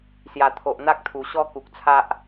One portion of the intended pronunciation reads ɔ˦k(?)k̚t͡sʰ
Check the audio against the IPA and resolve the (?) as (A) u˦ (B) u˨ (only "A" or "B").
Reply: B